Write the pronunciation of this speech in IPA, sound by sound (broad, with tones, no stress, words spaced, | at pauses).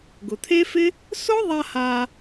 ɡʊ˩t̪ʰe˥fɪ˥ | sʊ˥ðˤa˧ ha˧